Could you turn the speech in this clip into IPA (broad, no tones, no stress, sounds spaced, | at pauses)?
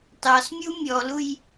t ɑ s mʲ u mʲ ɔ l u j